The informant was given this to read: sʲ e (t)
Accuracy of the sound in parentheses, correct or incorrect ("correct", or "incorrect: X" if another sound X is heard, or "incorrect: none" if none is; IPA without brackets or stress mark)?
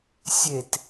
correct